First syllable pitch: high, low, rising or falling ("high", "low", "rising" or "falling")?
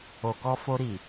low